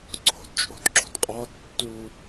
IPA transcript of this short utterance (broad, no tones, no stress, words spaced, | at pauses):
ǀʰo̤dt͡ʃʼo̤dǁo̤dqʼɒ tːu